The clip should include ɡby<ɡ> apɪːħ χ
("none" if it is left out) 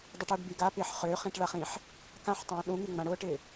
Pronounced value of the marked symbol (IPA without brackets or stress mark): ɡ